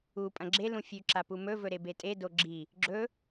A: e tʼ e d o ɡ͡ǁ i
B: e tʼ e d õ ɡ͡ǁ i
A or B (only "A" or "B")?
A